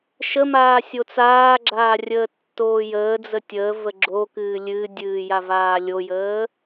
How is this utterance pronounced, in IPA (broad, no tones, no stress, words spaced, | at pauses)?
ʃəmaː sʲot͡saːɡ͡ǁaːrʲəː tːoːjəː d͡zətʲəː vəɡ͡ǁokɨː lʲɨdʲɨː javaːlʲojəː